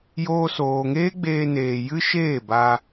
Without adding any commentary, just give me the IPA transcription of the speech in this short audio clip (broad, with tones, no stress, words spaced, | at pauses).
joː˧soː˨ŋeː˦ ɡ͡beː˧neː˨jɨ˦ʃeː˦˨ ba˧